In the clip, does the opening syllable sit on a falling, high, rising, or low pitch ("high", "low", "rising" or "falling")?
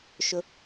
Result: high